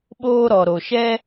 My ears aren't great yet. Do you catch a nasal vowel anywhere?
no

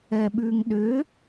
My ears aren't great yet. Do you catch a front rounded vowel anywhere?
yes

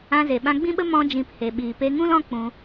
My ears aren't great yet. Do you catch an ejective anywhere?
no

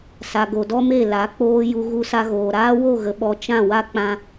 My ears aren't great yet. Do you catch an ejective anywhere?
no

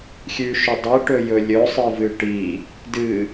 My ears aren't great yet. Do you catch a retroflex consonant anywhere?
yes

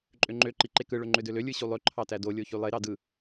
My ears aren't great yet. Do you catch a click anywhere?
yes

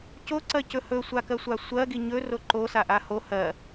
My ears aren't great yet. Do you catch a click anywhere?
yes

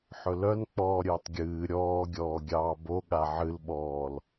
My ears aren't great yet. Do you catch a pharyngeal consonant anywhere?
yes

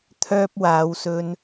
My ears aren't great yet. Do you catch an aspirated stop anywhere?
yes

